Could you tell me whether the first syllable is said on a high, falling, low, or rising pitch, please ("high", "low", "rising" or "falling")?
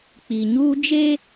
low